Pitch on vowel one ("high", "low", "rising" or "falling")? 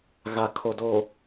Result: low